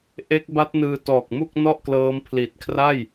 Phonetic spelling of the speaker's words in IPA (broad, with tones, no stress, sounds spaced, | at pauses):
ʔ e˦˥ k̚ b a˦˥ t̚ n ɯː˧ t ɔː˨˩ k̚ m u˥˩ k̚ n ɔ˥˩ ʔ k l ɤː˦˥ m pʰ l i˨˩ t̚ kʰ r a˥˩ j